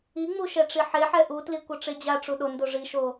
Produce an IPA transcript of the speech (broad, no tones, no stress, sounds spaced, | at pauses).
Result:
i ŋ͡m u ʃ ɛ ʈ͡ʂ i ħ e ħ ɛ ʔ u t l i kʷ ʌ ʈ͡ʂ e d͡ʑ a ʈ͡ʂ u ɗ o n d o ʐ i ʃ o